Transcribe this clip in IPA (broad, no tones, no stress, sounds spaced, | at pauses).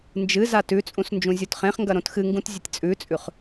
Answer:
n d͡ʒ ɨ z a t ʉ t͡sʼ ũ s n d͡ʒ ũ zʲ u t χ ẽ χ ŋ ɡ ɐ ɾ õ t x ɨ ŋ ɡ ũ t zʲ ɨ tʲ t͡sʼ ʉ t͡sʼ ʉ χ